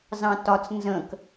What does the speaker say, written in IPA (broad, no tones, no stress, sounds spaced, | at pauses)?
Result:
z ɑ̃ t ɒ t͡s n z ə̃ k